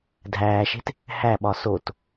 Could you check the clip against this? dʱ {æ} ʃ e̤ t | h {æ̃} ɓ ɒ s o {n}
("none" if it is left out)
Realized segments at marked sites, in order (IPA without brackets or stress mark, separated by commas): æː, æ, t